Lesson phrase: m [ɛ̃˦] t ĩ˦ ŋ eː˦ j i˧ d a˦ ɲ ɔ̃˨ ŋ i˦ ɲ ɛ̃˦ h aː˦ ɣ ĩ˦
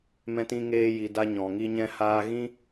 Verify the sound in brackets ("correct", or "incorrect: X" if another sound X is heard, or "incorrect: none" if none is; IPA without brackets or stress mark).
correct